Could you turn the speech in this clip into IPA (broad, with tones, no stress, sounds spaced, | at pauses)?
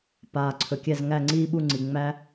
p aː˩ ǀʰ ɵ˩ kʲ æ˧˩ z ŋ æ˧˩ ŋ͡ǀ iː˧ ɓ u˧˩ ŋ͡ǀ i˩ ŋ͡m æ˧